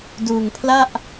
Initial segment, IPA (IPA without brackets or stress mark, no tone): d